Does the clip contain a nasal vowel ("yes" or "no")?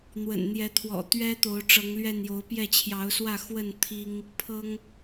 no